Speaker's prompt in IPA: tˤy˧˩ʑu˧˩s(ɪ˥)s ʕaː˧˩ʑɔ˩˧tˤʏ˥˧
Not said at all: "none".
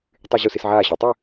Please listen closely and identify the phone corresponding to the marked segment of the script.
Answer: ɪ˩˧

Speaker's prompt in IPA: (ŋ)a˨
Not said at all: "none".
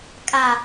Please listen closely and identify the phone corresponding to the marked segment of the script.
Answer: kʼ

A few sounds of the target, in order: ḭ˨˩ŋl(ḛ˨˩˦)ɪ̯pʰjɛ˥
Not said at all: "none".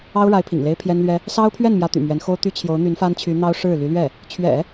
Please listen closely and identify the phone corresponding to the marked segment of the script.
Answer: e˥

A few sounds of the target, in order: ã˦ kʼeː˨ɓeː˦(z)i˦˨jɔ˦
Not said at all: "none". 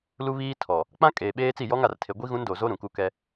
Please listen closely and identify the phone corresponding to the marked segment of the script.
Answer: t͡s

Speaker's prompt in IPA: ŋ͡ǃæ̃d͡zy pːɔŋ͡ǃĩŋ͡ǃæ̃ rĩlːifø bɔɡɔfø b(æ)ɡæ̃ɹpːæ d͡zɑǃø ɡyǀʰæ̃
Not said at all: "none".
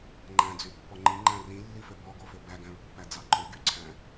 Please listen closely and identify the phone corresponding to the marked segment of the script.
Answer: æ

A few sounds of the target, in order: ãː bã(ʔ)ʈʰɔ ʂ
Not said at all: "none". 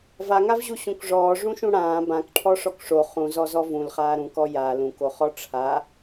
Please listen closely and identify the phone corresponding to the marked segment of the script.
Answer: k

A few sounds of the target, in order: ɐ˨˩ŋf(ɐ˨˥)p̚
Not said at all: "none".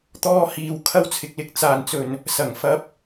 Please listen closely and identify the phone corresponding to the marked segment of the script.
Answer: ɐ˧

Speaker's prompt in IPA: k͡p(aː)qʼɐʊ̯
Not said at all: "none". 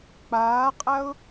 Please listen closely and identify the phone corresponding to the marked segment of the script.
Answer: aː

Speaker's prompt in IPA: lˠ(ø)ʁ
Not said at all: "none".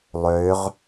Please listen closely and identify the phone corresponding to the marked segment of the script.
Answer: ø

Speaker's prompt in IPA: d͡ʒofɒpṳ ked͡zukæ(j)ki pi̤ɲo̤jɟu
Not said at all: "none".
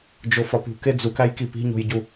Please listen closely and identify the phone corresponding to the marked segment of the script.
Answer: j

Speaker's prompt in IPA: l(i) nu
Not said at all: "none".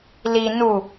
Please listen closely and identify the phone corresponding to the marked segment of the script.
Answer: i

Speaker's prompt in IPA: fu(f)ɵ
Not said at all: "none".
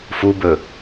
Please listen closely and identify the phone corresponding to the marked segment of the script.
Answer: b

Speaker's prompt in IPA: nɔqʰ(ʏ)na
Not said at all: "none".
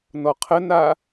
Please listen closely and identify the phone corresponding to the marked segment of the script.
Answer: ə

